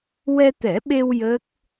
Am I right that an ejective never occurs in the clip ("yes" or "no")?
yes